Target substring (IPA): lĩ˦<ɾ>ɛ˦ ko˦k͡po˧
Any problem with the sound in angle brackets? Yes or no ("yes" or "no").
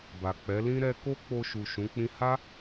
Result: no